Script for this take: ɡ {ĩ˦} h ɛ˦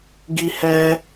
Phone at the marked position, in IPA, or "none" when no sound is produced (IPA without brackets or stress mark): i˦